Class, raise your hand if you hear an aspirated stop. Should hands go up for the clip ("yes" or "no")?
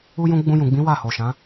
no